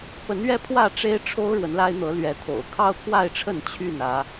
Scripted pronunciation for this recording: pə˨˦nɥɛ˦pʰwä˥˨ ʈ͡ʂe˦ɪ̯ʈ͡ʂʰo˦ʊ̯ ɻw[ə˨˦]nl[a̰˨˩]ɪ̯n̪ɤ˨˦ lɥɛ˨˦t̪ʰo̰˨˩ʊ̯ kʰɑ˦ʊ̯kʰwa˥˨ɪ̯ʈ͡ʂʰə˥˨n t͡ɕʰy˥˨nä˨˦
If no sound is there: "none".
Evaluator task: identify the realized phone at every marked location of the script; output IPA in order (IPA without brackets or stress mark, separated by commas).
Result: ə˨˦, a˦